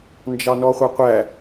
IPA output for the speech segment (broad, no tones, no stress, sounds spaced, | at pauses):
n d͡ʒ ɑ n ɔ χʷ ɑ qʷ æ